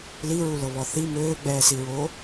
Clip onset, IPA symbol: l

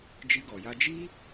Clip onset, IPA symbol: d͡ʒ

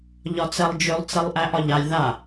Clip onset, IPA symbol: ʎ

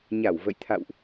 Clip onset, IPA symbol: ɲ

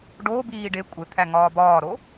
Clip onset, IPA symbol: ɖ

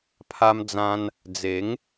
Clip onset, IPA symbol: pʰ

